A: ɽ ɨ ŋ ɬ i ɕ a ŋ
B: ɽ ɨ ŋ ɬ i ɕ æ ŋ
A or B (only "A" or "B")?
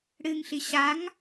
A